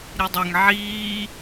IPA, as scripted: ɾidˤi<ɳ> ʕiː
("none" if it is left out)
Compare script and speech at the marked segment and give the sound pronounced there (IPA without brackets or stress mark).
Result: ŋ